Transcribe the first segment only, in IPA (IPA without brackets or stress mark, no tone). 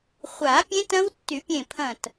χʷ